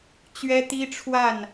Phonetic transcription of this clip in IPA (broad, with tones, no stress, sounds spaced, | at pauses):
t͡ɕ ɥ ɛ˦ t̪ i˦ ʈ͡ʂʰ w a˥˨ n